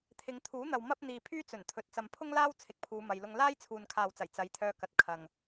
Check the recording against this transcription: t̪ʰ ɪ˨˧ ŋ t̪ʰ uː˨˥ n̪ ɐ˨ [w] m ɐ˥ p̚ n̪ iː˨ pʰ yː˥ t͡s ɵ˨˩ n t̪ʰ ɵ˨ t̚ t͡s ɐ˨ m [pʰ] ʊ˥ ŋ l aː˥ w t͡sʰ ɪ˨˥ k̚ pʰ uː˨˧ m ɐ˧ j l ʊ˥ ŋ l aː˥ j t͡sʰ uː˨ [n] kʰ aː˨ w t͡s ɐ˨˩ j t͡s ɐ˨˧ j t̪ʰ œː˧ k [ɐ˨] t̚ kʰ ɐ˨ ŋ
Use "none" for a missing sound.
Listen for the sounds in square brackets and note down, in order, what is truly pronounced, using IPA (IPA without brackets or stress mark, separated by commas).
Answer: w, pʰ, n, ɐ˨